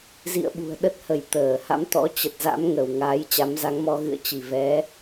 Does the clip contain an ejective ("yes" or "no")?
no